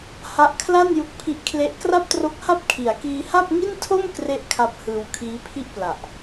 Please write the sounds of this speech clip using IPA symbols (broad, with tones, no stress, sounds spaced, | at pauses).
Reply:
h a˦˥ ʔ kʰ l a˥˩ n j u˦˥ k̚ pʰ i˦˥ ʔ kʰ l e˦˥ ʔ k r a˥˩ p̚ t r o˦˥ k̚ h a˥˩ p̚ kʰ i˩˦ a̯ k iː˧ h a˥˩ p̚ ŋ i˥˩ n tʰ o˥˩ m k r e˥˩ ʔ kʰ a˦˥ p̚ h ɯː˧ w kʰ iː˦˥ pʰ i˥˩ ʔ p l a˨˩ ʔ